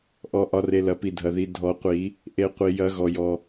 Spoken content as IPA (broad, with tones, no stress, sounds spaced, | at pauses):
ʔ ɔ˩ ʔ ɒ˩ r e˩ l ɐ˩ p i˩ dʱ ɐ˩ ð i˩ dʱ ɔ˨˩˦ qʷ i˨˩˦ | ʔ e˨˩˦ qʷ i˩ j ɐ˨˩˦ ɣ ɔ˩ j ɔ˩